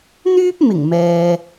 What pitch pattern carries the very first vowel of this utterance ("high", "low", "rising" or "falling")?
high